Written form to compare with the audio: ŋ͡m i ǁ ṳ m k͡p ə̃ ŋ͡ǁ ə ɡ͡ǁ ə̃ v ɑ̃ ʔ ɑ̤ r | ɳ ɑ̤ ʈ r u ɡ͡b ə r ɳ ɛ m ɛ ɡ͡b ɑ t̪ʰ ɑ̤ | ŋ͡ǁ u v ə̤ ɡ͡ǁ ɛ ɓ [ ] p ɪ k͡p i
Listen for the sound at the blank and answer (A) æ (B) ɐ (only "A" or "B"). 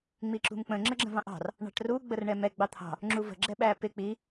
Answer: A